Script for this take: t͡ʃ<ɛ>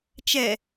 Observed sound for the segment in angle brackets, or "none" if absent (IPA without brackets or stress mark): ɛ